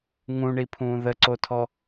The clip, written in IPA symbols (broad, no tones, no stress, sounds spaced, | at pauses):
ŋ ũ ɳ i pʰ ũː ð ə ǀ o tʰ ɔ